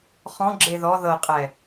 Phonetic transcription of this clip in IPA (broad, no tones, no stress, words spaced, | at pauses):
χɔ̃ ɡ͡ǁeðɔ ðɤqʼɛ